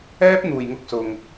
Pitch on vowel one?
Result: high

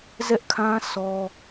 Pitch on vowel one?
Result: high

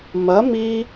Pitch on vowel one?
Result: rising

